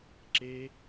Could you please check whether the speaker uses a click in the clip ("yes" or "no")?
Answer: yes